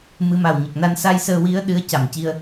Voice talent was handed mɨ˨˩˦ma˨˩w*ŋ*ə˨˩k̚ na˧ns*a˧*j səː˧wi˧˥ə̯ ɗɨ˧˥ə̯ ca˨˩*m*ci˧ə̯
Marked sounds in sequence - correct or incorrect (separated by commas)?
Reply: incorrect, correct, correct